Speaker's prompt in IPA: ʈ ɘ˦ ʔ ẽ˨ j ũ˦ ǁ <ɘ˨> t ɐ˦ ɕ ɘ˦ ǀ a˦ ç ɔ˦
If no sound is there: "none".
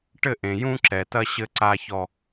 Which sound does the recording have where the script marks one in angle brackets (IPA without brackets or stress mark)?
ɛ˨